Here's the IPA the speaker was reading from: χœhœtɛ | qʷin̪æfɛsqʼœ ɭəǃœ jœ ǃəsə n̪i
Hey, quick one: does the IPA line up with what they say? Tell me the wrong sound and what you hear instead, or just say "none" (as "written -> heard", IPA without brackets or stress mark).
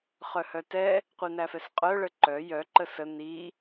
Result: none